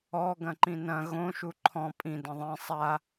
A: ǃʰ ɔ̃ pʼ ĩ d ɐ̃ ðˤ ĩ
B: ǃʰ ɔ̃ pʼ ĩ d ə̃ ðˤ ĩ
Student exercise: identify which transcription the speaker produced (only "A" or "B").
A